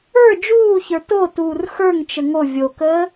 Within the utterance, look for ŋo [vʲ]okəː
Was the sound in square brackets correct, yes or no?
yes